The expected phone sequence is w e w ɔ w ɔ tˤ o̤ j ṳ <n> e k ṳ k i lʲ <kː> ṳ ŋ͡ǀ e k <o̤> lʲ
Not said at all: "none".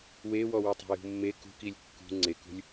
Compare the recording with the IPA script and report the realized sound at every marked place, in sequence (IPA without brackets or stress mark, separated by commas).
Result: mː, kː, ṳ